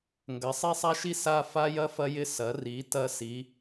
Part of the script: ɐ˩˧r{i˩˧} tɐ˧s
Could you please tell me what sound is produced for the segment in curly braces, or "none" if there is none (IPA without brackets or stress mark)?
i˩˧